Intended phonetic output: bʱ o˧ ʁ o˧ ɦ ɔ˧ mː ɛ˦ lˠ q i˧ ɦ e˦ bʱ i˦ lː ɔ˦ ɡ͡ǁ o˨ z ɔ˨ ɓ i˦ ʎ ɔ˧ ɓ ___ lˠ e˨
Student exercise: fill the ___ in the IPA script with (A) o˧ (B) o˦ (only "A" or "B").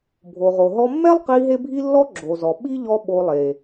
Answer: A